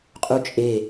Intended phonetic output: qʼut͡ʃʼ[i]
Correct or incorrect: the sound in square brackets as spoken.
incorrect: e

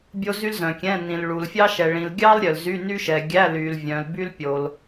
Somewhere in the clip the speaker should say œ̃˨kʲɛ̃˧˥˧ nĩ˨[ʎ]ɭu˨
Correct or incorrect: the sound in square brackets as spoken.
incorrect: l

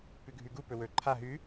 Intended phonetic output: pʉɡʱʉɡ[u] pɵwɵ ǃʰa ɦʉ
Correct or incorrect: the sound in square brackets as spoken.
correct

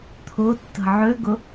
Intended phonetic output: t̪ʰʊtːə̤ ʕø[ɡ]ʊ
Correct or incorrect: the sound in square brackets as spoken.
correct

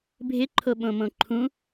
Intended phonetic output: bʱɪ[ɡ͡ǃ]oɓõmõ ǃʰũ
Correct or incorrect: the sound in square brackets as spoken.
incorrect: ǃʰ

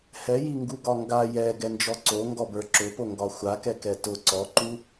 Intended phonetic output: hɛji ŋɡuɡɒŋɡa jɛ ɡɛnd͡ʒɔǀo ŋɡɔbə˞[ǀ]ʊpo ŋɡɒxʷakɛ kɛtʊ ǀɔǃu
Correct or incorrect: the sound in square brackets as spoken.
incorrect: ǁ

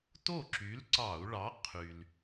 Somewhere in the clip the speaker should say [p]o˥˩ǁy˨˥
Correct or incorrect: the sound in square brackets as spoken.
incorrect: t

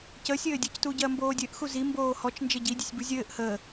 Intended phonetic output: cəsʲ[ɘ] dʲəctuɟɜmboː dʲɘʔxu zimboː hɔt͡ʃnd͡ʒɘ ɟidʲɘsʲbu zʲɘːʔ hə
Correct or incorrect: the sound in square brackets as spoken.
incorrect: ɘː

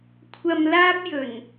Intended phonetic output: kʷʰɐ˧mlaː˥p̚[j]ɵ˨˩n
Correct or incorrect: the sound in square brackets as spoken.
correct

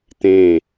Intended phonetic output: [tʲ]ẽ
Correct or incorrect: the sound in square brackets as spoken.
incorrect: t̪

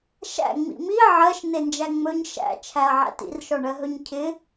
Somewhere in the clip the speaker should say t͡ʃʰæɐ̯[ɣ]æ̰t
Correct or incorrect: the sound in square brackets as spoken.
incorrect: ʕ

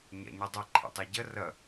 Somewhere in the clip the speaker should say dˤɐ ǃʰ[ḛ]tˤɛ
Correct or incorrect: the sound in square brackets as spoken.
correct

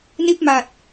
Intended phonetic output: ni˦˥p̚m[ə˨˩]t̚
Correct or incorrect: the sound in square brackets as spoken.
incorrect: a˨˩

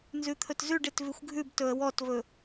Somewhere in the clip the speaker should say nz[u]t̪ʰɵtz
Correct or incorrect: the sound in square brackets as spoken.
incorrect: ʉ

